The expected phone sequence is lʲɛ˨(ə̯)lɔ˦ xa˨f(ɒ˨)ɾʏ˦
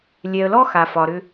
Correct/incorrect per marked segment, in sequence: correct, correct

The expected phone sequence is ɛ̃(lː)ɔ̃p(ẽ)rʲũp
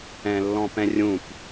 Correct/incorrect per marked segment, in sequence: correct, incorrect

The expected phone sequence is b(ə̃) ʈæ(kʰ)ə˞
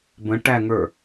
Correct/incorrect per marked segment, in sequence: correct, incorrect

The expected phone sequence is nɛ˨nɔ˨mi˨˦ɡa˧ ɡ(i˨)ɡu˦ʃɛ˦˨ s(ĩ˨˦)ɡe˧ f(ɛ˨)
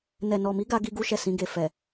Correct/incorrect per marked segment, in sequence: incorrect, correct, correct

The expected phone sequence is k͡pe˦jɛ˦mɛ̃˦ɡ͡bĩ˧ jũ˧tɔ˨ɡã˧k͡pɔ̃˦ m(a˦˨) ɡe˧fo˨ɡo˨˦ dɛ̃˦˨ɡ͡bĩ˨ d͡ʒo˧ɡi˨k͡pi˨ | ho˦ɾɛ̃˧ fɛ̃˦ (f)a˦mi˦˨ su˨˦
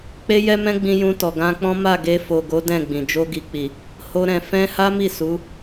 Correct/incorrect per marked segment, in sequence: correct, incorrect

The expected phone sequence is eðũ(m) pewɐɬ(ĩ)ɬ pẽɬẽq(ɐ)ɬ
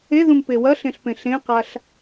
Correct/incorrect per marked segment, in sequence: correct, incorrect, incorrect

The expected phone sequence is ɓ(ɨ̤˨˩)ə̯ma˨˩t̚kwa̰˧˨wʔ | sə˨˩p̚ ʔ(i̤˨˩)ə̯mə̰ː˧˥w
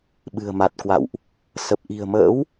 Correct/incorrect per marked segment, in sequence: correct, correct

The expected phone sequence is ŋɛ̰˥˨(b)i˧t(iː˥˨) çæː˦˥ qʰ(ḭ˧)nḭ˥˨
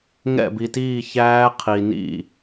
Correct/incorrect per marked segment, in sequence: correct, correct, incorrect

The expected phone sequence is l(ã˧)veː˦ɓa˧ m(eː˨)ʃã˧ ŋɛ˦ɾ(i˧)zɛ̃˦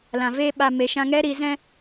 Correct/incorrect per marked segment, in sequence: incorrect, incorrect, correct

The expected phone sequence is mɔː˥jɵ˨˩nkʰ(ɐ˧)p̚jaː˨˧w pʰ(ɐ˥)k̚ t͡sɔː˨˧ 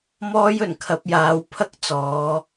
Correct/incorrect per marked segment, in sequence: correct, correct

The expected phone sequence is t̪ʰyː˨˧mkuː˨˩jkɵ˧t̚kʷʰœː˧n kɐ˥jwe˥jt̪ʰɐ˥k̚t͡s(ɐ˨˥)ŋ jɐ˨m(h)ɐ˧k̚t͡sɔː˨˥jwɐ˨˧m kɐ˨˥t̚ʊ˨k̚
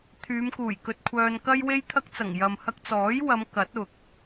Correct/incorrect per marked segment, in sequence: incorrect, correct

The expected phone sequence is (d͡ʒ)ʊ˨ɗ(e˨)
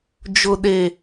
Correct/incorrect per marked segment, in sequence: correct, correct

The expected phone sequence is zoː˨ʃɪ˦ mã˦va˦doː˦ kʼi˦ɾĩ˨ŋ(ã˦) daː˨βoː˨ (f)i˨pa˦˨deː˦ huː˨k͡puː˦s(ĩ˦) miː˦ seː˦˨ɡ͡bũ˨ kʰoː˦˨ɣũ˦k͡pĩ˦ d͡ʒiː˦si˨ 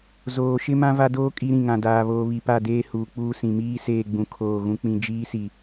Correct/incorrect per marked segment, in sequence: incorrect, incorrect, incorrect

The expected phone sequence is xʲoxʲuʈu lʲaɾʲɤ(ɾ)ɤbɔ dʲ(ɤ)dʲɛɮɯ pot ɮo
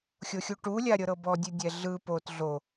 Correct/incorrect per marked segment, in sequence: correct, incorrect

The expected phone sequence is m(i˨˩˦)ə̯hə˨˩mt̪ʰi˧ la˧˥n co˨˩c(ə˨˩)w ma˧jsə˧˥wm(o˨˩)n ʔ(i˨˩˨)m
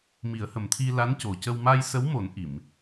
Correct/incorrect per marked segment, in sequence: correct, incorrect, incorrect, correct

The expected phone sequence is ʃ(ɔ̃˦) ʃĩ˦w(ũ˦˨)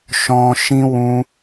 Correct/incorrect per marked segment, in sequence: correct, incorrect

